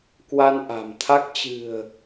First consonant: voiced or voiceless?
voiceless